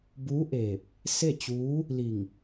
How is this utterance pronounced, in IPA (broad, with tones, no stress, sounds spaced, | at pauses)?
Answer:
b uː˧˥ ʔ eː˧˩ p̚ | s e˥˨ t͡ɕ uː˧˥ | l i˧˩ ŋ